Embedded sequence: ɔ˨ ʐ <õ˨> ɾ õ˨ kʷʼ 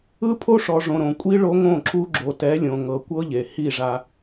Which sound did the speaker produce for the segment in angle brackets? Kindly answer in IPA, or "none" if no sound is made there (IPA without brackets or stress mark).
õ˨